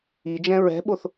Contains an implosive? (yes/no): yes